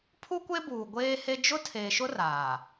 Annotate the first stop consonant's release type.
aspirated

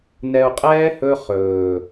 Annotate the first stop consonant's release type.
ejective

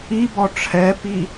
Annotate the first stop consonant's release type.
plain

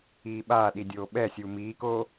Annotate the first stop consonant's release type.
implosive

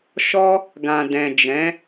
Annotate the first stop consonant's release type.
plain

